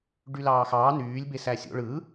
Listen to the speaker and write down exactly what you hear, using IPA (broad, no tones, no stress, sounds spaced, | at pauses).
ɖ y l ɑː x ɑː n yː lʲ b e s æ sʲ o̰ ɭ ɯ